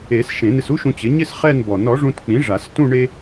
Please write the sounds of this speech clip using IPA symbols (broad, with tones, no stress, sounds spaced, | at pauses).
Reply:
e˨˩˦ s ʃ ẽ˨˩˦ n ɪ˧ s u˥ ʃ ũ˧ t͡ɕ ɪ˩˥ ɲ ɪ˥˧ s χ ɛ˥˧ n b ɔ˨˩˦ n ɔ˩˥ ʐ ũ˧ t k͡p ĩ˩˥ ʐ a˨˩˦ s t ũ˥˧ ɳ e˥